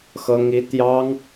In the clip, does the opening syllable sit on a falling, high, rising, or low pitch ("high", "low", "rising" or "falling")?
high